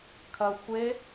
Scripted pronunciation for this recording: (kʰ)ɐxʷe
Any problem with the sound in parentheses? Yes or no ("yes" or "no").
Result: no